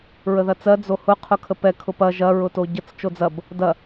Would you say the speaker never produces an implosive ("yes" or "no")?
yes